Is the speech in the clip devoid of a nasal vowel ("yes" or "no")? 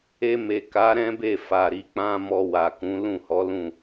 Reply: no